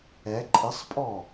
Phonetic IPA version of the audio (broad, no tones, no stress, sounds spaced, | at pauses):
ɛ ǃʼ ɪ sˤ pʼ ɔ